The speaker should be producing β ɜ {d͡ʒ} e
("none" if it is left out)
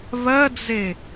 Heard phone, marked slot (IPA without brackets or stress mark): d͡z